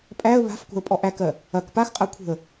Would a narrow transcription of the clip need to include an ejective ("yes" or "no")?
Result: yes